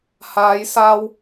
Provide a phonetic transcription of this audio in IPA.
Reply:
haː˨˧jsaː˧w

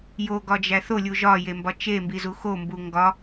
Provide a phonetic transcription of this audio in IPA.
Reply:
joɡɒd͡ʒæ θolʲu ʒɒjembɒ t͡ʃembizu xombu ŋɡɒ

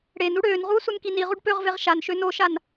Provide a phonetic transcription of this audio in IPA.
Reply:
ɽen uɽøːnʁuː sunkiniʁuɖ pøʁveʁ ʃan ʃønoʃan

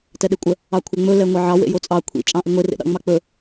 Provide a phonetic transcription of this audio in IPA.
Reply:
tɛɗekʷʼə | ɑkʷʰɛŋ͡mɵ lɛŋʷɑʕɑ wḛjot͡sʼɑ kʷʰḭ t͡ʃʼɑ̃ʔiŋʷe rḛɗɑ̰ŋ͡mɑk͡pɵ

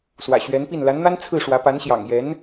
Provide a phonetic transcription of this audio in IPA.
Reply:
swä̰˨˩ɕɥɛ˧˥npi˥˩n la˧˥nn̪a˥n t͡sʰɹ̩˥˩ʂwä˧˥ pa˧˥nɕjɑ̰˨˩ŋ jɛ˧˥n

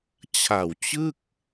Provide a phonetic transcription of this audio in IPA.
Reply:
t͡ɕʰa˨˩w t͡ɕɯ˥˩k̚

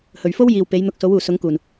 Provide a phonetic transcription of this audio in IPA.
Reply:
hɵ˨˩ɥfo˥w jiː˨w pe˨˥jn̪ʊ˧k̚ so˨˥wuː˨˩sʊ˨˥ŋkuː˨˩n

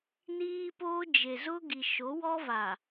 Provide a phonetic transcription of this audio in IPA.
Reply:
niː˦poː˦ d͡ʒe˨zʊ˦ɡi˨ ʃo˨˦wɔ˦va˨

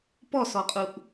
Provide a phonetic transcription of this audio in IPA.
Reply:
pɔsɔqʼuʔ

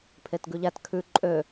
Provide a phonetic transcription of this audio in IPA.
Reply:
pʰetɡʉʎæt kʰʉ ǃʼø

